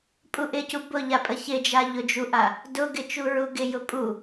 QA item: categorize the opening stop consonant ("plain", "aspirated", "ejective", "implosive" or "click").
ejective